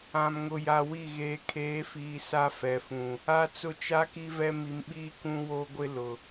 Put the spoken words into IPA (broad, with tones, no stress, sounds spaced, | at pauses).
ã˨ m ŋ ʊ˨ j a˨ w i˦˨ ɣ eː˨ kʰ eː˨˦ f iː˨ s a˦ f ɛ˨ f ũ˨ | a˦ t͡s ʊ˦ t͡ʃ a˦ k i˦ v ɛ˦ m i˨ m ɓ iː˦ k ũ˦ w o˦ ɡʷ ɪ˦ l ʊ˨